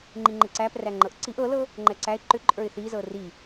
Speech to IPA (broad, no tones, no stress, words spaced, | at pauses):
ŋ͡ǃiŋ͡ǃeǀæpræ ŋ͡ǃɤʔǀiʔ ɤlɤ | ŋ͡ǃɛǀæɪ̯ ǃʏǃʼə˞ɪ̯ θizɤ ri